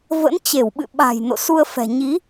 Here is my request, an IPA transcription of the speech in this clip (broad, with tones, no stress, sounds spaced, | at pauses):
v ə̰˧˥ n t͡ɕ e˧˩ w ɓ ɨ̰˧˨ ɓ a̤˨˩ j n o̰˧˨ s u˧ ə̯ f ɛ̤˨˩ ɲ i˨˦